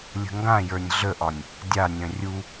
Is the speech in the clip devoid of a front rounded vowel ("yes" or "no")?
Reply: no